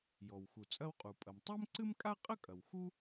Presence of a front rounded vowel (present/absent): absent